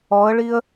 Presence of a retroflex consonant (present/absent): present